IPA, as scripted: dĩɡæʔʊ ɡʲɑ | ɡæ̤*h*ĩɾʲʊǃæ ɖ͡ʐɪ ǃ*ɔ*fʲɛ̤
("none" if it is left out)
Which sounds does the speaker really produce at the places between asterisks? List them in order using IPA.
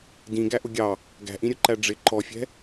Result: ʔ, ɔ

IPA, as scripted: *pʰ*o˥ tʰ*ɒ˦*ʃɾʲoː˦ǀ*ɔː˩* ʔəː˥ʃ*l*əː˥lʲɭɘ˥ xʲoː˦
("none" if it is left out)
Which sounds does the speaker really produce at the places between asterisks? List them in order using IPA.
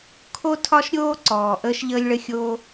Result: kʰ, ɒ˦, ɔː˩, ʎ

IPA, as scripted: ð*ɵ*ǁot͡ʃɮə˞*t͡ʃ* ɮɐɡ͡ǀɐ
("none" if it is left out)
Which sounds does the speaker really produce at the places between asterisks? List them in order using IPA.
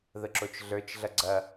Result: ə, t͡ʃ

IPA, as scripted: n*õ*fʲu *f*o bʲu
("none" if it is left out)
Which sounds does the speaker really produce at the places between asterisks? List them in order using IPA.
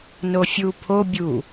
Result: o, pʰ

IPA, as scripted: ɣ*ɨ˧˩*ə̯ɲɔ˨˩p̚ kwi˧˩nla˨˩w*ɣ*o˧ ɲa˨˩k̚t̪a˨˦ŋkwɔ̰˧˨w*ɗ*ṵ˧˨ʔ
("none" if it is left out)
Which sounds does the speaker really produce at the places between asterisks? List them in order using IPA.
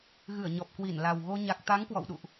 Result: ɨ˧˩, ɣ, ɗ

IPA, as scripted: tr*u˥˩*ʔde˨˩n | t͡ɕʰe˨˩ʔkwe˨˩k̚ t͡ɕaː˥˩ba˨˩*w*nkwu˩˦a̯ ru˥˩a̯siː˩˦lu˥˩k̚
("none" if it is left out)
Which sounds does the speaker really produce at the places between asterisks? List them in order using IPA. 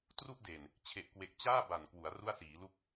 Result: u˥˩, none

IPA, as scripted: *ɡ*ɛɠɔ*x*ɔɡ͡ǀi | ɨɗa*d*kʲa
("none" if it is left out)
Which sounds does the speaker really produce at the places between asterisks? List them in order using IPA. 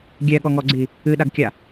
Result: ɡʲ, ŋ, ɡ

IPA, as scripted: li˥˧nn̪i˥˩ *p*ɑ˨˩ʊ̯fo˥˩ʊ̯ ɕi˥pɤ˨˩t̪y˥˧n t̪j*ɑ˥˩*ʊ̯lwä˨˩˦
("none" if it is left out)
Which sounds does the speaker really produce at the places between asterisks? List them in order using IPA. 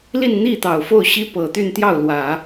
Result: t̪, ɑ˥˩

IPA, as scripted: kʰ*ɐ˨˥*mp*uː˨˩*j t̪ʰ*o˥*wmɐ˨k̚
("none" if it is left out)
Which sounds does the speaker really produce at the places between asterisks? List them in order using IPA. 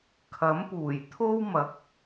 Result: ɐ˨˥, uː˨˩, o˥

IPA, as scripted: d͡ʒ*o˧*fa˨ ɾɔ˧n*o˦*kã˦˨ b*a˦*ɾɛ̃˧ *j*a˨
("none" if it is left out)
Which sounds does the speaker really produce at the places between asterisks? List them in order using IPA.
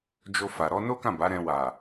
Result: o˧, o˦, a˨˦, w

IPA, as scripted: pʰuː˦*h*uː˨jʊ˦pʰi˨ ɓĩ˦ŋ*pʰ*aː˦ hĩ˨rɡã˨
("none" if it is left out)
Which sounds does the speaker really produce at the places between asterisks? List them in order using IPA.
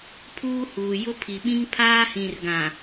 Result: h, pʰ

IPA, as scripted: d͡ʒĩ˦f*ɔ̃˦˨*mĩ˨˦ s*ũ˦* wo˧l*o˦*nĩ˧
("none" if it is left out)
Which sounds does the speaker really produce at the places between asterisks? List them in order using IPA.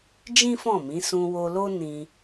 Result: ɔ̃˦˨, ũ˧, o˦

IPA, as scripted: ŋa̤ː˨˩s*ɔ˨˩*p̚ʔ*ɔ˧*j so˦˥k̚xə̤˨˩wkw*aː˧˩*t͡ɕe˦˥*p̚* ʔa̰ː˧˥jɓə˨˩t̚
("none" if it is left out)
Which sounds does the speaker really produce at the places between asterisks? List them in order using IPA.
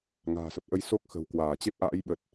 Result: ə˨˩, ə˧, aː˧˩, p̚

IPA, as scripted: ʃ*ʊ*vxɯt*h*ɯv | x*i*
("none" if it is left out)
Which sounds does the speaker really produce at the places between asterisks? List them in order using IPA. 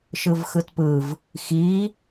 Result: ɯ, p, i

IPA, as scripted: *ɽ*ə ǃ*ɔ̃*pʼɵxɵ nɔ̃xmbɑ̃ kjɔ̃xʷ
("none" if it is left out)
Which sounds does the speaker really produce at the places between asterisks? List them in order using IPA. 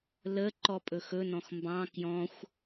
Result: l, ɔ

